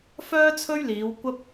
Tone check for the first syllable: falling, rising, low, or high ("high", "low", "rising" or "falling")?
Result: high